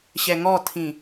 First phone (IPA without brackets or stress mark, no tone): ɕ